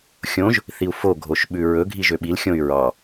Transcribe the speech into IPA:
xʲõʒ | θiu̯fo ɡʱoʃɓʉɹɵ ɡʱiʒøɓil xʲõy̯ɹɑ

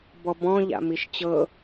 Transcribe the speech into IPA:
bɔbɔ̃ ʎa̰miʃt͡ɕɤ

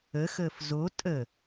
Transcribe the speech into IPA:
əxəːf zo tʼə

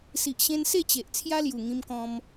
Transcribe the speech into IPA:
si˨ʔɕẽ˧n se˥˧t͡ɕe˨ʔ t͡sʰja˦lju˨˩ŋĩ˧mkɔ̃˧m

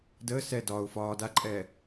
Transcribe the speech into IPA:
dəː sɛ dɒʊ̯ fɒː daǃʼɛː

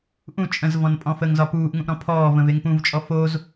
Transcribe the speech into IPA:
ʔũ t͡ʃʼə̃zvɔ̃n pʼɔ̃fəŋzɒ puːʔŋũʔ ɾɔ̃pʰɔːvə̃v eŋpũvt͡ʃʼɔ foz

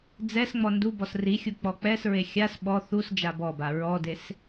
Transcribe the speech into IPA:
d͡zɛs ŋ͡mɔndubɔs rixʲu k͡pɔk͡pɛsɹe xʲas ɓɔ θus d͡ʒabɔba ɹɔdes

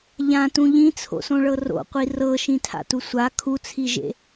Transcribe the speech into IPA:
ʎãtũ ʎĩt͡sʰo̰sõɭɤ ro̰qʷi rɤʃĩtʰa̰tu sʷa kʰut͡sʰiʒḛ

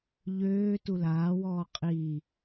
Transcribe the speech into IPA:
ʎøː tulaːwɔː qʼi

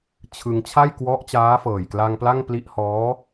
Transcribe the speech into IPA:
t͡ɕʰɯ˧ŋ t͡ɕʰa˥˩j kwɔ˦˥ʔt͡ɕaː˦˥ fɤː˨˩jkla˧ŋpla˥˩ŋ pli˦˥ʔhɔː˦˥

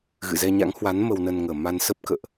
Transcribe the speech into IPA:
ɣɨ̰˧˨zɛ˧ɲa̰˧˥ŋhwa˨˦n mə˧wnə˧n ŋəː˨˩ ma˧n sə˦˥p̚kə̰ː˧˨ʔ

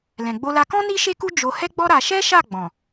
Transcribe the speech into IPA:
lɛ̃˨ɡ͡bo˧la˧kɔ̃˦ ni˦ʃe˦ku˦ d͡ʒo˧ hɛ˦ɡ͡bɔ˦ ɾa˧ ʃɛ˦ʃa˦˨ɡ͡bɔ̃˨

